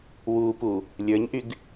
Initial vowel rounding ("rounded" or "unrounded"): rounded